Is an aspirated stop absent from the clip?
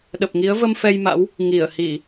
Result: yes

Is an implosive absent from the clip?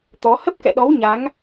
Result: no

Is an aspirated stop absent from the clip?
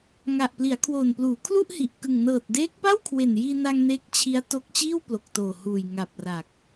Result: no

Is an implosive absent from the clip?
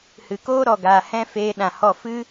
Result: no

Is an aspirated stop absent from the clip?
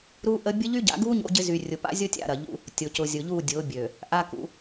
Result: yes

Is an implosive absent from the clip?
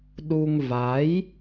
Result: no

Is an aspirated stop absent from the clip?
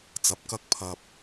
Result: no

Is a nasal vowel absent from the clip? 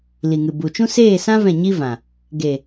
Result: no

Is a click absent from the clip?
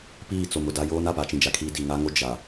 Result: yes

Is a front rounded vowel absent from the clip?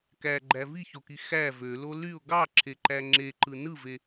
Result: no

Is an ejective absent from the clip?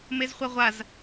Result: yes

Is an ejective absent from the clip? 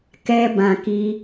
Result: yes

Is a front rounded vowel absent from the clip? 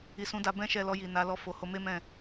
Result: yes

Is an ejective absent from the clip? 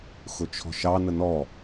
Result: yes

